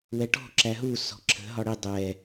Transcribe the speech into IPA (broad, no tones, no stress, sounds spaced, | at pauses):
w ɛ ʈ ɔ̤ ǁ æ ɦ u s ɔ̤ ǁʰ ə̤ ɦ ɒ ɽ i dˤ ɛ